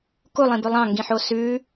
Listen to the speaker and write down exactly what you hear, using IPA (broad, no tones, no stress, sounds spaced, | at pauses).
k u lˠ ĩ b ʉ lˠ ɑ̃ ŋ ɡ ĩ ħ o s ʉ